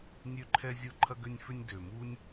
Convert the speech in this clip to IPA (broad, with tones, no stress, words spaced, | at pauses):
nʲø˥ǃʰɛ˥zʲʊ˥ ǃʰɐ˥ɡʏ˥nʲfʏ˥nʲ dø˩mu˥nʲ